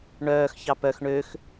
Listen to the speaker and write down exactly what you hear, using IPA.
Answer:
ɳœːx çɑpœx ɳøx

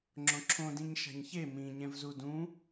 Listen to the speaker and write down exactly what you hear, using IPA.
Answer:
ŋ͡ǁõǁʰõ dĩɲʃa̤ɲçe mĩ ɲɛ̃vzudũ

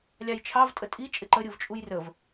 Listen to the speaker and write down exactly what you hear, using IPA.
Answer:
lʲɑjt͡ʃʰɑv tʼətʼi t͡ʃʼɪǃə ɾʲuvt͡ʃʼujrəv

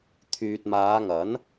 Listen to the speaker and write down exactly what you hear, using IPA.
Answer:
t̪ʰyː˨t̚maː˨˧ŋɐ˨˥n

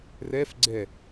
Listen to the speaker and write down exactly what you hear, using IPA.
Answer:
rɛf ɡ͡ǀɛ

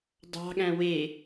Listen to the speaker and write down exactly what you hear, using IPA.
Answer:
dˤɑ̤ɠæ̃ we

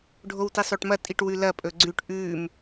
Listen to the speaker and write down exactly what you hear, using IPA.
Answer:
ɖʱowtisˤoʈmɐ tʼiʈwʉlɐ pʼɵɡ͡ǀʉʈ ʔʉm

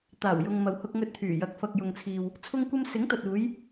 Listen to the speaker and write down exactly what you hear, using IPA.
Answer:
t̪aː˨˩wjʊ˨ŋmɐ˨whʊ˧k̚ ŋɵ˧t̚t̪ʰyː˨˩jɐ˨˥k̚ fɐ˨k̚jʊ˨ŋt͡sʰiː˨w | t͡sʰʊ˥ŋkʷɐ˥m sɪ˨˥ŋt̪ɐ˨t̚uː˨˧j

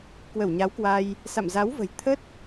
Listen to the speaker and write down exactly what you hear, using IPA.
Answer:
kwə˧˩wɲa˨˦wkwa˧j | sa̰˧˨mza˨˦wvə̤˨˩j t̪ʰə˦˥t̚

